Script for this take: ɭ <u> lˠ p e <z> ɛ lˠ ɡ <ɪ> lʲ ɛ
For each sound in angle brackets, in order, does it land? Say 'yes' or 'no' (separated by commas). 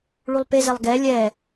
yes, yes, no